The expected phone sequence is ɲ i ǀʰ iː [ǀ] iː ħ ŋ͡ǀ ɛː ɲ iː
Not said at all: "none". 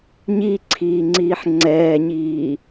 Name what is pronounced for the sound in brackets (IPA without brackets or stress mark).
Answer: ŋ͡ǀ